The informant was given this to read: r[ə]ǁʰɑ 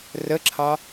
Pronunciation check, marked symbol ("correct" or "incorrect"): correct